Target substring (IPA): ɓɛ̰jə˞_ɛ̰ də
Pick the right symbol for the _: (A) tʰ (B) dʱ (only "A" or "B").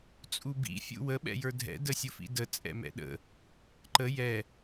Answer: B